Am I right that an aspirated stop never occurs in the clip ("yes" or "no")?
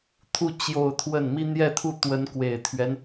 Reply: no